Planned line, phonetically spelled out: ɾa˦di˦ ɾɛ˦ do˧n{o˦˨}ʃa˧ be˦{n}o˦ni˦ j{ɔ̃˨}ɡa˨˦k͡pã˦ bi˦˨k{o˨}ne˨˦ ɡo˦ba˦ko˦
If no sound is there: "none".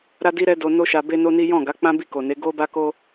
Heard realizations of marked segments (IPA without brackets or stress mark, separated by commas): o˦, n, ɔ̃˦˨, o˨